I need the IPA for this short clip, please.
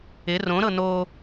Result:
ɪ r õ ɾ ɤ n o

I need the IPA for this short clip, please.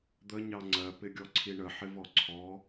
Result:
d̪ ə ɲ ɑ ŋ͡ǀ ɜ p ɪ ɡʲ ɔ ǀʰ i ɳ ə ħ ɪ v ɔ ǀʰ ɔ

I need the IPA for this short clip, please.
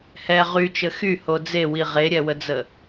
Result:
h ɛ ʁ y t͡ʃ ə x y h o d͡z e w i ʁ e ɾʲ ɛ w ə d͡z ə

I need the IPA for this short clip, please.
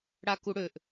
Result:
ɽ a k u ɽ ø ʔ

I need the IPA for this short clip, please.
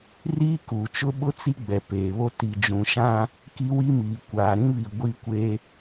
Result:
r iː˦ k u˨ t͡ʃ ʊ˦ ɓ ʊ˦ t͡s i˦ ɡ͡b ɛ˨ p eː˨ β o˦ t i˨ d͡ʒ ũ˨ ʃ ã˦ | k i˦ w i˦ m iː˨ kʷ aː˨ ɾ ĩ˦ β i˨ ɡʷ i˦ kʷ e˦

